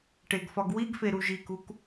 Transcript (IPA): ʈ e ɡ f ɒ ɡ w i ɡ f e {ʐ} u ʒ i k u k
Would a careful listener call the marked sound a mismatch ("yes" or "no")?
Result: yes